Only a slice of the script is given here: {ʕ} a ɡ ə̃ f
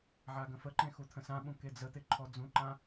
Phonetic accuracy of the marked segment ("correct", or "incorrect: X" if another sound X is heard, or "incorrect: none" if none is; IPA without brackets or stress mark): correct